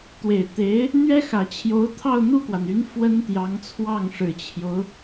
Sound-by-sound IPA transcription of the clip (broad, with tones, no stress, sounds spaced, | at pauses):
t̪ w e˨˩ ɪ̯ t̪ e˧˥ ɪ̯ | n̪ ɥ ɛ˥ x ä˨˩ t͡ɕʰ j o˧˥ ʊ̯ t̪ʰ ɑ˥˧ ʊ̯ n̪ u˥˩ k w a˩ n y˧˥ n f w ə˥ n t̪ j ɑ˧˥ ŋ t͡sʰ w ɑ˥˩ ŋ ʂ ɻ̩˨˩ t͡ɕʰ j o˦ ʊ̯